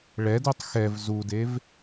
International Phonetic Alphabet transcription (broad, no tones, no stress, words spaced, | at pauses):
ɭɛdutˤ xɛv zudev